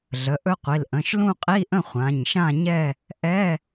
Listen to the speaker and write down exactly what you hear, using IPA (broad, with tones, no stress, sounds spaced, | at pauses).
ɮ ə˩˧˩ ʔ ɵ˦˥ qʷ i˩˧˩ l ʔ ə̃˩˧˩ ʃ l ũ˥˧ qʼ i˧˥˧ ʔ ə̃˥˧ χʷ ã˩˧˩ ɲ ʃ ã˥˧ ɲ ɛ˥˧ | ʔ ɛ˧˥˧